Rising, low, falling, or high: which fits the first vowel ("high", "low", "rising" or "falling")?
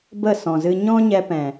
falling